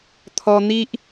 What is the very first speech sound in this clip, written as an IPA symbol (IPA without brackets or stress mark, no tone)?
t̪ʰ